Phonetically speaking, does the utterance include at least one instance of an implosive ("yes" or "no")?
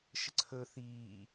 no